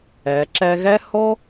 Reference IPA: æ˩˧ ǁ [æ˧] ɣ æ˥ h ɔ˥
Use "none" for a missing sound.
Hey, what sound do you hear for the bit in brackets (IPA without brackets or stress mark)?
æ˧